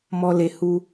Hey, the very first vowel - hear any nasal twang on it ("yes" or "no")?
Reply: no